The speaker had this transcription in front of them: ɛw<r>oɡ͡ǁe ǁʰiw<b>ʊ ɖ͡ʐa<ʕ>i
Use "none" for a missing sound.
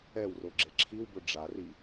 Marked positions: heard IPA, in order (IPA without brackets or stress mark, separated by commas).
r, b, r